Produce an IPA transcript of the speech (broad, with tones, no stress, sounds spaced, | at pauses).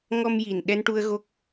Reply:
ŋ ɔ˧ m j i˨˩ n ɗ ɛ˧ n ʈ u˧ ə̯ ɣ o˦˥ k̚